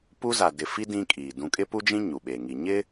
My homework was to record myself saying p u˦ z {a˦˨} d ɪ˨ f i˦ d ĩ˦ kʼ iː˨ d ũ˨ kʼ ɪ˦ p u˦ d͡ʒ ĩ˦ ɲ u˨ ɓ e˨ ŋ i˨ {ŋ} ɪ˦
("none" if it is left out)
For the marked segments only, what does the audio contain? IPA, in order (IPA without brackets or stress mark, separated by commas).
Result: a˨, ɲ